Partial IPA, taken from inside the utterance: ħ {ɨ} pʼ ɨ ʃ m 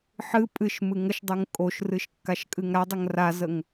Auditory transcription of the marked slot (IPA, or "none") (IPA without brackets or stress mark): ɨ